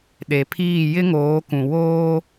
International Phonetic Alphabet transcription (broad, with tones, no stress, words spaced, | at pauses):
ɗe˨pʰiː˦˨ jɪ˦ŋoː˨˦kũ˨ woː˦